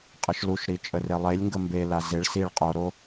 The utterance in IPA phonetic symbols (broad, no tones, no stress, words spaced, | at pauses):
qʼəʃluʃɾi t͡ʃʼərelˠelʲŋɡə mbela zeɭ siɭ qʼoɾo